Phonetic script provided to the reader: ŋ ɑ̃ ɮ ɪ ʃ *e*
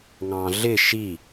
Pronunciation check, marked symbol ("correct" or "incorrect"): incorrect